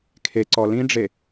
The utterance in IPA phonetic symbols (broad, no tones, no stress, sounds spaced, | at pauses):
kʰ e ǀ ɔ l ĩ ɖ͡ʐ e